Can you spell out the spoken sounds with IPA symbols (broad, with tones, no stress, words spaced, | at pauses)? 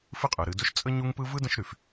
fɨ˦qʼɯ˩ɾɨ˨dɵ˦ʃ t͡sʼə˦ ɲu˦ŋpɯ˦vɯ˥ də̃˦ʃɾy˩f